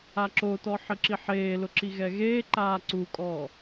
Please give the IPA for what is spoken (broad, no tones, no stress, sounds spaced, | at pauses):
a ǁ o t ɔ ħ ɪ ǁ i ħ eː l ʊ ǁ i ɣ ɛ ɣ eː ǃ aː ǀ u kʼ ɔː